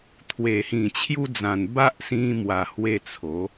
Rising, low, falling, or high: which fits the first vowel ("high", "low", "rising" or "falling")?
low